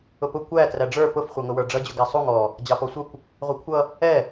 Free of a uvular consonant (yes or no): no